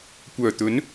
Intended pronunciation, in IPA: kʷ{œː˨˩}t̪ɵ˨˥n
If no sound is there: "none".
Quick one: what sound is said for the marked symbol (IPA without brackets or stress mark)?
œː˨˩